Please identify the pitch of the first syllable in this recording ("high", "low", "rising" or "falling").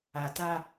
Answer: low